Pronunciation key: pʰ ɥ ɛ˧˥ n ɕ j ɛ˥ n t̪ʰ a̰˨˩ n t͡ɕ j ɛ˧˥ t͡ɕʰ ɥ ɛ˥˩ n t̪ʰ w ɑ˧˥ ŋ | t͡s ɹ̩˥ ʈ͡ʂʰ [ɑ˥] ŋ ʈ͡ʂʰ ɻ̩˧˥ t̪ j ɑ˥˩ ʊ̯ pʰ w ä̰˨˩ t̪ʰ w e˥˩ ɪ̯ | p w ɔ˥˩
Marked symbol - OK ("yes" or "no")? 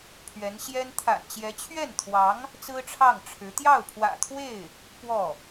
no